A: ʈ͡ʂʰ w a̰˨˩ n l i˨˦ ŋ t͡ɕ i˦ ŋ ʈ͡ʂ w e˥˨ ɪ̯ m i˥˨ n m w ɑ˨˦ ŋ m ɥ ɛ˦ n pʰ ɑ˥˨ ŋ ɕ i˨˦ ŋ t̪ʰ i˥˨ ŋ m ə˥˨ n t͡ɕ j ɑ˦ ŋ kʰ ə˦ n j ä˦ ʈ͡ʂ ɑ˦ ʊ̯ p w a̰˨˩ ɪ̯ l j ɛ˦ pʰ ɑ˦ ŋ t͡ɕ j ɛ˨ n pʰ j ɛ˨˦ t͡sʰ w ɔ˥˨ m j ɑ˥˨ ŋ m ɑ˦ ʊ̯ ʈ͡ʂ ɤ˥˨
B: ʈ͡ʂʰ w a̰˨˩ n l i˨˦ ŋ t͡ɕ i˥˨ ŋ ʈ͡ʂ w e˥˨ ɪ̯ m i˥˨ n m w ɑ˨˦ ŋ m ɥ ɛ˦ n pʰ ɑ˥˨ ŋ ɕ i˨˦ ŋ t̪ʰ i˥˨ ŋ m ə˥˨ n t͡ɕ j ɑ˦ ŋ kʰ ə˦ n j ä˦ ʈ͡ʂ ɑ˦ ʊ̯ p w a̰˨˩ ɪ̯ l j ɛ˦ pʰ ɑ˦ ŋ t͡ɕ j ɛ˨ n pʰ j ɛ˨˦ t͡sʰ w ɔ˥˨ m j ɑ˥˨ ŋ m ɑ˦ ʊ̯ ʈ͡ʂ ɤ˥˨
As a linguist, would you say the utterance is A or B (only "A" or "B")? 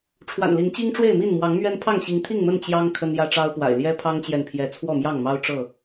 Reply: A